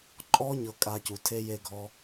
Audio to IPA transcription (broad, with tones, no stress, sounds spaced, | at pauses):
ǃʼ ɔ˦ ɲ ɤ˦ kʼ a˦ c u˧ tʰ e˦ j e˦ ɡʱ ɔ˦